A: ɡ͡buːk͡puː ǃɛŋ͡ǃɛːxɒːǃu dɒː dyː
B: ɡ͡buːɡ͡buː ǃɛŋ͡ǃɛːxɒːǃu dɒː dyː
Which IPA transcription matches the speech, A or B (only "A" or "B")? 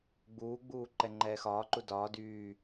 B